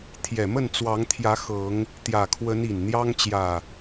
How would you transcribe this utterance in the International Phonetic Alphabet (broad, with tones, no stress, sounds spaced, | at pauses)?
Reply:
t̪ʰ j ɛ˨˩ m ə˥˨ n t͡s w ɑ˨˦ ŋ t̪ʰ j ä˨˦ x ɤ˨˦ ŋ | t̪ j ä˨˩ kʰ w ə˨˦ n i˨˩ n n̪ j ɑ˦ ŋ t͡ɕ j ä˨˩